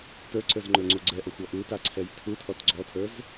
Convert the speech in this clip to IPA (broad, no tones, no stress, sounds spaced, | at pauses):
t ə˞ ǀ ə˞ z ŋ͡ǃ ə˞ ŋ͡ǀ o ɡ͡ǀ ɛ ʔ ɔ xʷ ɔ ʔ u t a ǀʰ ɛ j tʰ u tʰ ɔ t ɡ͡ǀ ɔ tʰ ə˞ z